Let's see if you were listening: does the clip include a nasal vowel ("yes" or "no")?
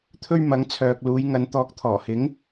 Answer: no